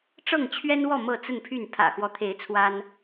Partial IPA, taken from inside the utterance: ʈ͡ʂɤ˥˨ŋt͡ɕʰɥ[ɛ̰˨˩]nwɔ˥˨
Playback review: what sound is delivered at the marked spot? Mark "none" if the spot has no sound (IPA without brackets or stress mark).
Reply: ɛ˦